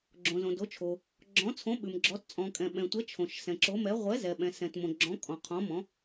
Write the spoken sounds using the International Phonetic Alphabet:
ɡ͡ǁ õ˨ z õ˨ d o˨˥ t͡ʃʰ o˨ | ɡ͡ǁ ɔ̃˨˥ t͡sʰ õ˨˥ ɓ ʉ˨ m ɡ͡ǁ ɔ˨˥ t t͡sʼ ɔ̃˨ kʼ ɛ̃˨ ɓ ɛ̃˨ tʷ ɛ˨˥ t͡ʃʰ õ˨ ʃ s ɛ̃˨ ǁ o˨˥ m ɛ˨˥ ʁʷ ɛ˨˥ z ɛ˨ ɓ ɛ̃˨ s ɛ̃˨ t m õ˨ ɡ͡ǁ ɔ̃˨˥ kʼ ɔ̃˨ qʰ ɔ̃˨˥ m ɔ̃˨˥

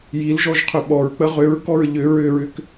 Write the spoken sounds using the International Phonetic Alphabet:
j i l ʒ ɔ ʒ qʰ ʏ ɓ ɔ ɹ k͡p ə ʁ ʏ ɹ k ɔ ɹ ʎ ʏ ɹ ʏ ɹ ʏ k

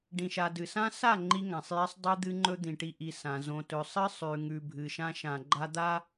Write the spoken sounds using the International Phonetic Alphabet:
ɖ ĩ˨ ʃ a˨ d ɨ˨ s ã˦ s a˦˨ ŋ͡ǃ i˦ ŋ ã˨ sˤ j i˦ sˤ dˤ i˦ d̪ ɨ˦ ŋ͡ǃ ɵ˦ d̪ ĩ˨ ʈ i˨ ʔ i˨ s ã˨ z õ˨ t ɵ˨ sˤ ɨ˦ sˤ ʉ˨ ŋ ʉ˨ bʱ ɨ˨ ʃ ã˦ ʃ ã˨ ɡ͡ǃ a˦ d̪ a˦

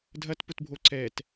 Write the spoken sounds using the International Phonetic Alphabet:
dʱ ɐ t p ʊ t bʱ o ǀ ɛ t

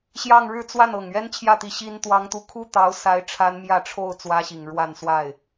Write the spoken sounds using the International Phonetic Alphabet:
ɕ j ɑ˥˧ ŋ ɻ ɻ̩˥˧ t͡s w a˥˩ n ɤ˨˩ ŋ ɥ ɛ˥ n t͡ɕʰ j ä˥˩ t̪ i˧˥ ɕ i˥ n t̪ w ɑ˥ ŋ t̪ u˥ kʰ u˥ t̪ ɑ˧˥ ʊ̯ s a˧˥ ɪ̯ ʈ͡ʂʰ a˥ n m j ä˥˧ ʈ͡ʂʰ o˥˩ ʊ̯ t͡s w ä˥ ɕ i˨˩ ŋ ɻ w a˥˧ n s w a˥˩ ɪ̯

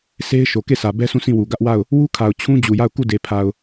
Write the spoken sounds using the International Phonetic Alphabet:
sʰ e˦ ɪ̯ ʃ o˨ k e˦˨ sʰ ä˨ b ɛ˦ s ũ˦˨ s ĩ˦˨ w u˨ ɡ ä˦ ʔ w a˦˨ ʊ̯ | w u˦ kʰ a˨ ʊ̯ t͡ɕʰ ũ˦ d͡ʑ u˨ j a˦˨ ʊ̯ k u˦˨ d e˨ pʰ a˨ ʊ̯

